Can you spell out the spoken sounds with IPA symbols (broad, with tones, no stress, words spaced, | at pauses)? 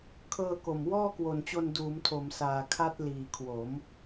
kʰɤː˧ko˨˩m wɔː˥˩kwo˨˩nt͡ɕo˧n duː˩˦mtʰo˩˦msaː˨˩ kʰa˦˥t̚ liː˨˩kʰwo˩˦m